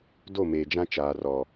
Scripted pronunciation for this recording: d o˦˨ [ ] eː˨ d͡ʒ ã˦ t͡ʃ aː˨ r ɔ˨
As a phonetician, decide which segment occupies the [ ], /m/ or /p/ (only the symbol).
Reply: m